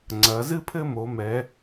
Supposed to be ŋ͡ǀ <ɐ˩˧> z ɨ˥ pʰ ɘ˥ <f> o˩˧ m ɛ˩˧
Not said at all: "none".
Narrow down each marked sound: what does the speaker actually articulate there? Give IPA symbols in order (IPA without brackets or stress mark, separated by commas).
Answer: ɐ˩˧, m